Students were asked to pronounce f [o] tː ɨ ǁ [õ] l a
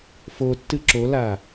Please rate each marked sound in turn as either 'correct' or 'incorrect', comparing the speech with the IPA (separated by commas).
correct, incorrect